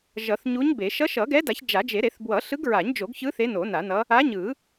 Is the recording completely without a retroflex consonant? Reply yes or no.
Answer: yes